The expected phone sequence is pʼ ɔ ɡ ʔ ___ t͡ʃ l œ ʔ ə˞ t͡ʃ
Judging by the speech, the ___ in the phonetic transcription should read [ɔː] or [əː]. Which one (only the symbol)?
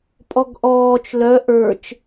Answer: ɔː